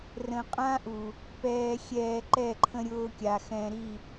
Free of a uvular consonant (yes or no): no